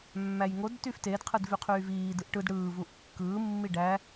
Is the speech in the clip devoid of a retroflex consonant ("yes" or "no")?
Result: no